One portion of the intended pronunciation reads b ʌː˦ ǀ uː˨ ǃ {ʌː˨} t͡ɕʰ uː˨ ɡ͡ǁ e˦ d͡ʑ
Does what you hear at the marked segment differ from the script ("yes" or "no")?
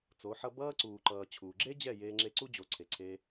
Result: no